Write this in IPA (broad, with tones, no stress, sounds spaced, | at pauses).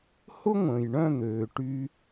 h ʊ˦ ŋʷ ə̃ː˨ j ɳ œ̃˦˨ n̪ øː˨ ʈ y˧